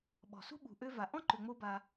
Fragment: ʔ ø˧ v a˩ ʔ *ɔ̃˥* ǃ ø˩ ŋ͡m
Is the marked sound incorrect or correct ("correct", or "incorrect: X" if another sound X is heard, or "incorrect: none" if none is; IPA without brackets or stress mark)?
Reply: correct